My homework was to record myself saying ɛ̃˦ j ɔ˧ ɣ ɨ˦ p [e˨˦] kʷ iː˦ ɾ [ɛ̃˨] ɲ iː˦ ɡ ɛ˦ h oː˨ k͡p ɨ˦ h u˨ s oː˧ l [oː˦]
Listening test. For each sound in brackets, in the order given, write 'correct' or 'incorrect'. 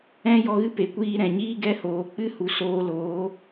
correct, correct, incorrect: oː˨˦

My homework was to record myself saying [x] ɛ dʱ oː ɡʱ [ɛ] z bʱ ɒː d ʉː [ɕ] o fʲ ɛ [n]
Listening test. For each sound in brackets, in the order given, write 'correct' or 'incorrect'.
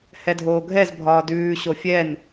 incorrect: h, correct, correct, correct

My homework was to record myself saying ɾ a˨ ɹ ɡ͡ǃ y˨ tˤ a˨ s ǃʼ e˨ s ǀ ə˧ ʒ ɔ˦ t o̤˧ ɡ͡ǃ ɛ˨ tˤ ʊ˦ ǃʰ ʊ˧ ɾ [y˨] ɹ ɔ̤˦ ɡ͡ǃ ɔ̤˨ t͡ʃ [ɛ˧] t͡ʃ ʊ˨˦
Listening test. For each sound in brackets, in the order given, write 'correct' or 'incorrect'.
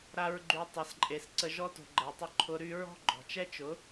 incorrect: y˦, incorrect: ɛ˦

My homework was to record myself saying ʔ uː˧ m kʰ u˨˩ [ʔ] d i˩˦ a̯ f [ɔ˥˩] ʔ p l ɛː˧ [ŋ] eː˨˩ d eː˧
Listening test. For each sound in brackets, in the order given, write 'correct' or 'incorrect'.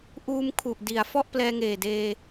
correct, correct, correct

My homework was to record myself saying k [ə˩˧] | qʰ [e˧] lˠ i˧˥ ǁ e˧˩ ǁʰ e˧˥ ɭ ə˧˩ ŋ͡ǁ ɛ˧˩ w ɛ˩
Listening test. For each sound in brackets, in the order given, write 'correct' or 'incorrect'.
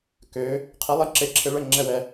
incorrect: ø˩˧, incorrect: e˧˥

